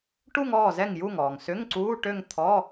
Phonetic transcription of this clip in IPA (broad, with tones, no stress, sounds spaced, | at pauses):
ʈ u˥˧ ŋ ɔː˥˩ z ɛ˥˩ ŋ j u˥˩ ŋ ɔː˩ ŋ s ʏ˧˥˧ ŋ ǀ uː˧˥˧ ʈ ø˥˧ ŋ t̪ʰ ɔ˧˥˧